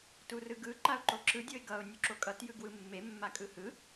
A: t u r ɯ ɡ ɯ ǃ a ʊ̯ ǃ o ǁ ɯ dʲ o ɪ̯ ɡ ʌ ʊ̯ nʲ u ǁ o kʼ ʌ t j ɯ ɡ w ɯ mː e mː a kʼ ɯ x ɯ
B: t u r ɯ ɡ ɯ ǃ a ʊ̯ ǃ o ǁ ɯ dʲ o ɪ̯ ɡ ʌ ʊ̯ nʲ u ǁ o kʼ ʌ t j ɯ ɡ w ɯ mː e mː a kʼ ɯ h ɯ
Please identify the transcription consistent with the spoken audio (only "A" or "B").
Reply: B